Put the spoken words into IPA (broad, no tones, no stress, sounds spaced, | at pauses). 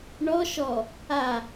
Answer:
ɳ ɔ ʃ ɔ | a